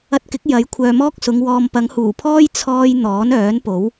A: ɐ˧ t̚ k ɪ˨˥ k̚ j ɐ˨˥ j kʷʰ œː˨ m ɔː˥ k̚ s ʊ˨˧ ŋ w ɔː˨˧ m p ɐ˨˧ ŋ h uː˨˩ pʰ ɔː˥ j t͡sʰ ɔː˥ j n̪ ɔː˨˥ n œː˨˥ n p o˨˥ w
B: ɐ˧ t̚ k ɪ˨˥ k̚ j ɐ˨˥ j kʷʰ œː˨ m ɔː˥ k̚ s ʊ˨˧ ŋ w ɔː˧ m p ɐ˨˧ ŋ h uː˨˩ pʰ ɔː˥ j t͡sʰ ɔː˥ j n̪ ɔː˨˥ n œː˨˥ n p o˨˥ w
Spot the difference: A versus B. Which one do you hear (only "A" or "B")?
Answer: B